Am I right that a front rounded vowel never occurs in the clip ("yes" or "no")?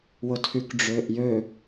no